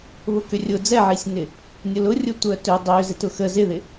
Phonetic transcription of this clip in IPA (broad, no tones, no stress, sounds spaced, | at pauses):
β ʊ k ʏ rʲ ʊ d͡z ɛ ʕ i sʲ n ɪ | nʲ ʊ l ʊ rʲ ʊ tʷ œ t ø dˤ ø z ɪ t ʊ x ə z ɪ ð ɪ